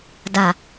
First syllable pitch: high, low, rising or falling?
low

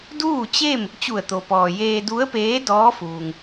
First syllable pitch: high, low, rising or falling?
falling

